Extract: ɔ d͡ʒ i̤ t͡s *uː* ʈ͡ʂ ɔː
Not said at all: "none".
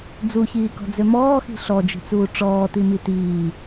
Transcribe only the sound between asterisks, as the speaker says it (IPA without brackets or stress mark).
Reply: uː